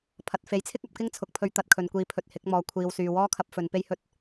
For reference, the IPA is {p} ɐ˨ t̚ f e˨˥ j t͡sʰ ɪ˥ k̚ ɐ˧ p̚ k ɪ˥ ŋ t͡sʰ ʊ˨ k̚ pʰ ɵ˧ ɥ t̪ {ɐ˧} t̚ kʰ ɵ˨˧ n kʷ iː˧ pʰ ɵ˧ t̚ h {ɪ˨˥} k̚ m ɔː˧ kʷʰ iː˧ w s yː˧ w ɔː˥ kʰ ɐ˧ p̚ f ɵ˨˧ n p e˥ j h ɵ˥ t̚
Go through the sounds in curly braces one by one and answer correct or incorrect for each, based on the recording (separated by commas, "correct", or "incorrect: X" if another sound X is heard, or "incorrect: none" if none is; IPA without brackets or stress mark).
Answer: incorrect: pʰ, correct, correct